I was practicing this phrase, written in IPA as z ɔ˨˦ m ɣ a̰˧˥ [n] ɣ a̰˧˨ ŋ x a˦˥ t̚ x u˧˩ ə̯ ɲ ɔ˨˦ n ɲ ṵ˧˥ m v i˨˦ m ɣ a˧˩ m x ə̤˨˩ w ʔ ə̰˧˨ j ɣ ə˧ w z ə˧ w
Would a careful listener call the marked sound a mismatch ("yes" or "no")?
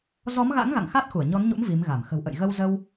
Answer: yes